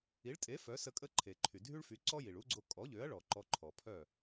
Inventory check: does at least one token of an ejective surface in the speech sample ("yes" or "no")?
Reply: yes